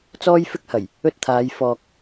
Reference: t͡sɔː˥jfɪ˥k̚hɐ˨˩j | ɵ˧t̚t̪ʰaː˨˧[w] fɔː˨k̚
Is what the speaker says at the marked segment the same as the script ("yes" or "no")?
no